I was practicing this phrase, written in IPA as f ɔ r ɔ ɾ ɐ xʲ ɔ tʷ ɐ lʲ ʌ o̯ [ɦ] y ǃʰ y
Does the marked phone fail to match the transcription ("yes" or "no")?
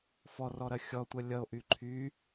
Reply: yes